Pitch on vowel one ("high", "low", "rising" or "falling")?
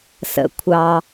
low